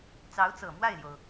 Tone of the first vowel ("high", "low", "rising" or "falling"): rising